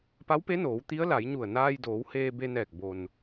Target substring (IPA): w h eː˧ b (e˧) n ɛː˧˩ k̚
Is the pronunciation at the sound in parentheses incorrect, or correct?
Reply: correct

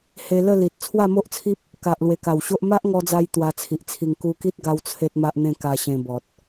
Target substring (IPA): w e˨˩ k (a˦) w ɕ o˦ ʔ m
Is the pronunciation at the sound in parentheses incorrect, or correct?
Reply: incorrect: a˨˩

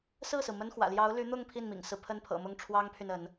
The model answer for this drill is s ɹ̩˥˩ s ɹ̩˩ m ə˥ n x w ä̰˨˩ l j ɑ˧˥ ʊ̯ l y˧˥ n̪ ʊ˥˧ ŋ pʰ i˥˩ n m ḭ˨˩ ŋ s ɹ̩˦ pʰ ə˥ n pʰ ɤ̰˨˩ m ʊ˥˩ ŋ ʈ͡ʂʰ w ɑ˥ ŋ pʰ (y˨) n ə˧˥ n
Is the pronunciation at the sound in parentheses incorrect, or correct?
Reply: correct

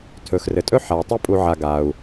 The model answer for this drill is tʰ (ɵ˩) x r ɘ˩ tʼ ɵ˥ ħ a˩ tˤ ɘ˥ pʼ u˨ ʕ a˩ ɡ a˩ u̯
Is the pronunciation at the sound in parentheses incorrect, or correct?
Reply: correct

